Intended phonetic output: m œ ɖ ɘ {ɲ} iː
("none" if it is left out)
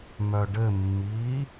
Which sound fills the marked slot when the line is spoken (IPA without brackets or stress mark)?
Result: mː